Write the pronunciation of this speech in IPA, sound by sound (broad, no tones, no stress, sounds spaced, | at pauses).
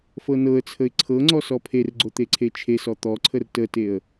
f ɤ n ɤ ə̯ t͡sʰ ə ɪ̯ ǀʰ ɤ ŋ͡ǀ ɔ s ɔ pʰ e r ɡ͡ǀ o t̪ e ǀʰ e t͡ʃʰ e s ɔ t̪ ɔ ǀʰ ə r t ə t e ə̯